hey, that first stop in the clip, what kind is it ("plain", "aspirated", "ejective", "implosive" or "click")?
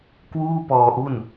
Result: plain